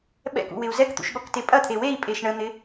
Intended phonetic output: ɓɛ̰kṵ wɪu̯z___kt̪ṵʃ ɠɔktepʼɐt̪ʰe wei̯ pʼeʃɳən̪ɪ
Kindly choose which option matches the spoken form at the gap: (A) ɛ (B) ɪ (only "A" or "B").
A